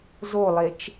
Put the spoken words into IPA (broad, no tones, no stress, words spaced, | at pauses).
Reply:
zolˠet͡ʃ